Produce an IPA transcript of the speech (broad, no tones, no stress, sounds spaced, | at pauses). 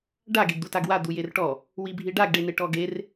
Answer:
ɖ a ɡ e ɡ d̪ u t a ɡ w a d̪ u j e r ʈ ɔ | w i bʱ i ɖ a ɡ ɖ e n e ʈ ɔ ɡ e r